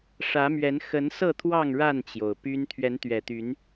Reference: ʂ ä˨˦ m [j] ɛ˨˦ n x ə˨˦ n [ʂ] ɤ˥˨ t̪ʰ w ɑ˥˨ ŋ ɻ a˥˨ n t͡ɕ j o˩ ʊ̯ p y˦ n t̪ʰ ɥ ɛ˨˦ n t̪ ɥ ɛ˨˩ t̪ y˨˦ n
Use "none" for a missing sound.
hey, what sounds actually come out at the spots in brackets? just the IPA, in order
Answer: ɥ, s

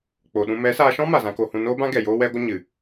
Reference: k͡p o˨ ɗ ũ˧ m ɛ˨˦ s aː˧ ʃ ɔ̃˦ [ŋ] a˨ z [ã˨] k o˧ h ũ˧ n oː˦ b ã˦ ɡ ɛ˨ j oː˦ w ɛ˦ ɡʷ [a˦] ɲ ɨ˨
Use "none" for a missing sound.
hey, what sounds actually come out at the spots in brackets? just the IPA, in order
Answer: m, ã˧, ə˦

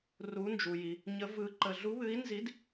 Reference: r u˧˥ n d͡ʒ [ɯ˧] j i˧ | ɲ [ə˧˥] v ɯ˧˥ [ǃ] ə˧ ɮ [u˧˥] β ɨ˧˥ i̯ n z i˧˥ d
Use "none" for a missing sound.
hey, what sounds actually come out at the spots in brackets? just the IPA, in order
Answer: u˧, ə˧˥, ǃ, u˧˥

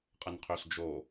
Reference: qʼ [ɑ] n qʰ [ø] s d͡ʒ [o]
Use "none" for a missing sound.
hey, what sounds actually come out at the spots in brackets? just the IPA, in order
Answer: ə, ø, o

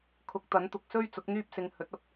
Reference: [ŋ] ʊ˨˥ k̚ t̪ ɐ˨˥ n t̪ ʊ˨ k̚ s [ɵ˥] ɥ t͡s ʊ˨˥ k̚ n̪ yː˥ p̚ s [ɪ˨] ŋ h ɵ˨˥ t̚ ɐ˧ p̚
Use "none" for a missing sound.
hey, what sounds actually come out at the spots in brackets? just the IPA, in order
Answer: kʰ, ɵ˥, ɪ˧

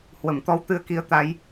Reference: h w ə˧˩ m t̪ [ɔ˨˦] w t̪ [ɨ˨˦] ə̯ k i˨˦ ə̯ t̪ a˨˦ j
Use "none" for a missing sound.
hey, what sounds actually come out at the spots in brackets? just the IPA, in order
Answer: ɔ˨˦, ɨ˧

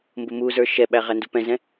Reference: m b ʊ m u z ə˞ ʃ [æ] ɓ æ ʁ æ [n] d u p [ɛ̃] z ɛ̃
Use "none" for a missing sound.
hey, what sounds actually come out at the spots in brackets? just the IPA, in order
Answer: ɛ, n, ɛ̃

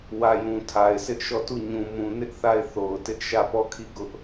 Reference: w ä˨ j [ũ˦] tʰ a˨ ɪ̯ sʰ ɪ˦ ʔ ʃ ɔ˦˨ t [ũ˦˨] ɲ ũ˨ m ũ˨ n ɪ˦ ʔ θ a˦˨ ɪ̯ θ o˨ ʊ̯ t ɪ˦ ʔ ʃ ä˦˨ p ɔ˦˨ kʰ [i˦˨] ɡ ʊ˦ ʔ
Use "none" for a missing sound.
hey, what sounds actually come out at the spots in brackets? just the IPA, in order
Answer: ũ˨, u˦˨, i˦˨

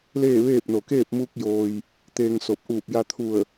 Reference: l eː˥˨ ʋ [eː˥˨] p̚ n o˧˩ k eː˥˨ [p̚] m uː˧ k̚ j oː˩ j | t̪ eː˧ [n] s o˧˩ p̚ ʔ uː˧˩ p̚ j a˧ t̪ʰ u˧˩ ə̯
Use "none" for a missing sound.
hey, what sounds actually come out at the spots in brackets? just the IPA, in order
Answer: eː˥˨, p̚, ŋ

